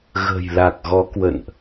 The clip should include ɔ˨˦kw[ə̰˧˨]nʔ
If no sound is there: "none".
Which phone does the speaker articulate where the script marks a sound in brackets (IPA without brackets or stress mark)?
ə̰˧˨